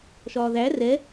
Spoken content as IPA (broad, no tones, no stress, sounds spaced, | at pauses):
ʃ ɒː ð æ r ɛ